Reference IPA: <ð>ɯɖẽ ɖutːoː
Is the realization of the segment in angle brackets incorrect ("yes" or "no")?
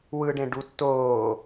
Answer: yes